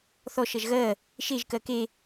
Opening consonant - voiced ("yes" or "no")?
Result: no